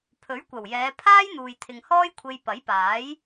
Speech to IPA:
pʰɵ˨˥ɥkʷɐ˨˩wjɛː˨˧ pʰaː˥jn̪uː˨jt̪ʰɪ˨ŋ hɔː˥jkʷʰe˧j pɐ˨˥jpaː˨˥j

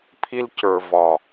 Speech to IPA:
pʰi˧lcə˞˨ vɒ˨

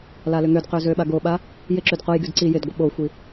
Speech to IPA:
lalʏŋødqø zøɓaɡoɓa | jɪǁyd qojɡyd ǀi jɪdɡʷɪ ɓoxʷi

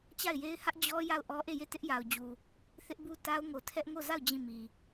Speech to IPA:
t͡ɕa˦˨ɪ̯je˦ɪ̯hä˦ʔ d͡ʑɔ˦ ja˦˨ʊ̯ʔɔ˦ ʔe˦˨je˦˨ tɪ˦ʔja˨ʊ̯ d͡ʑu˨ | θɪ˦ʔbu˦ ta˦ʊ̯ŋo˨tʰɛ˦ʔ ŋo˦˨za˦˨ʊ̯ d͡ʑĩ˦˨mi˨

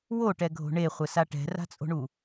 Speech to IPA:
woʈɛɡʱo̤ ɳeχʷɘsa ʈɛ̤ra̤t͡sʼo̤ɳu

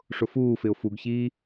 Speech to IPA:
ʂʊfuːfɪʊ̯ fuɡçiː

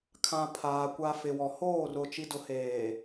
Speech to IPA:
kʰã˨ pʰaː˨ kʷa˨ fɪ˨wɔ˨hoː˦˨ rʊ˨ t͡ʃi˨dʊ˨heː˨

